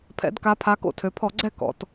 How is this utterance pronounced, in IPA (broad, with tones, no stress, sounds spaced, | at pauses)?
pʰ ɛ̰˩˧ d k a˩˧ pʰ a˩˧ k o̰˧˩˧ tʰ ø˩˧ pʰ ɔ˧˩˧ ɡ͡ǀ ɛ˦˨ k ɔ̰˩˧ t